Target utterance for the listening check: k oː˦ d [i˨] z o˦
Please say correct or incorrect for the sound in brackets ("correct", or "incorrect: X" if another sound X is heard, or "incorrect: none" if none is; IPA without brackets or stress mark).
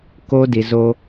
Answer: correct